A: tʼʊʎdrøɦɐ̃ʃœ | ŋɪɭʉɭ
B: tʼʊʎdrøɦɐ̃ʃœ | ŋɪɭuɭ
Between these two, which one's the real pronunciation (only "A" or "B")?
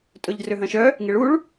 B